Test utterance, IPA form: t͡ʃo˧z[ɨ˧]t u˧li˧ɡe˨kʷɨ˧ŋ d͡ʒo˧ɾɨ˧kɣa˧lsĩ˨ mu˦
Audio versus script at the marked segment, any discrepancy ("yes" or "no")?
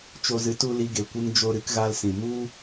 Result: yes